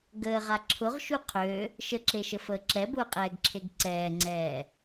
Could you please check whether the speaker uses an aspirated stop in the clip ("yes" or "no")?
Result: yes